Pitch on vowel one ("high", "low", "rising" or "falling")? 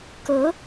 rising